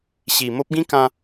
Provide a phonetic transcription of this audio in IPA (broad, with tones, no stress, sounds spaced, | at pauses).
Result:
ɕ i˨˩ m o˦ p̚ ɡ ĩ˦ k ã˧